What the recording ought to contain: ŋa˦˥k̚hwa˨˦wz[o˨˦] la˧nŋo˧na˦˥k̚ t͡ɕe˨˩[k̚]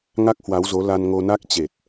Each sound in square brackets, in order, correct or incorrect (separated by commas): correct, incorrect